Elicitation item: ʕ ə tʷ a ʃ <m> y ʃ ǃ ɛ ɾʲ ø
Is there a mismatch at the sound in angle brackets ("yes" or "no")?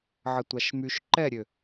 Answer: no